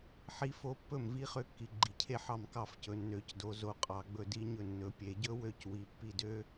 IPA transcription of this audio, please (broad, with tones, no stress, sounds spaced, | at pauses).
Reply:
ħ i˦˥ f o˦˥ pː ɵ˥˩ m v i˦˥ χ ø˦˥ kː i˩˧ ɡ͡ǃ i˩˧ cʰ e˥˩ ħ ɑ˥˩ m k ɑ˥˩ f c ɵ˩˧ nː ø˩˧ c d o˩˧ z o˩˧ qʼ ɑ˩˧ ɡ͡b ɵ˥˩ d i˦˥ ɲ ɵ˥˩ nː ɵ˩˧ pʲ e˩˧ ɟ ɵ˦˥ w ø˦˥ c w i˩˧ pː i˥˩ d ø˦˥